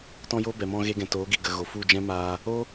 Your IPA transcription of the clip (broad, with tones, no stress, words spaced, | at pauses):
tɔ̃˦jo˦ bɛ˨mɔ̃˧ɣe˧ɡɛ̃˨ toː˨˦ɡi˨ ɡə˨ ɣo˨fu˦˨d͡ʒɛ̃˦ maː˧ | o˦